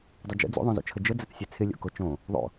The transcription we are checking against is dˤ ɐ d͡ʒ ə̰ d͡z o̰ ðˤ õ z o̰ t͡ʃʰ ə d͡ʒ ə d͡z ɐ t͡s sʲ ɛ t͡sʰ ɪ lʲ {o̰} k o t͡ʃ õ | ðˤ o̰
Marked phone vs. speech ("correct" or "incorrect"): correct